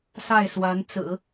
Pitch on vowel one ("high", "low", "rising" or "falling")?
falling